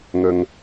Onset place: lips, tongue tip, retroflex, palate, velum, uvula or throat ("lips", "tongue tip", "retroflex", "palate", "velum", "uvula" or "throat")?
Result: velum